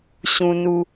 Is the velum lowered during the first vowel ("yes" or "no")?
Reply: yes